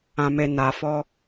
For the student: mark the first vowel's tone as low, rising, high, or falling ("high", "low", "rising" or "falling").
low